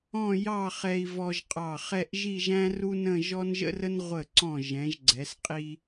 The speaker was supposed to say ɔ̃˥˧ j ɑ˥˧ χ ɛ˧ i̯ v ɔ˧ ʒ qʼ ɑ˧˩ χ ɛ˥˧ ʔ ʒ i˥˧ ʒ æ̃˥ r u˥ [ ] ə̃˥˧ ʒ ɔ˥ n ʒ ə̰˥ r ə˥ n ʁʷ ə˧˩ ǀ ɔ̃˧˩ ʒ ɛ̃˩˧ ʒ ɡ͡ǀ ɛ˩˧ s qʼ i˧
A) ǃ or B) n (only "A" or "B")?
B